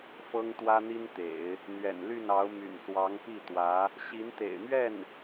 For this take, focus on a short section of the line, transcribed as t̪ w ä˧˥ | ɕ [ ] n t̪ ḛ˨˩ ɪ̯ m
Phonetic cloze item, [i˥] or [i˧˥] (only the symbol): i˧˥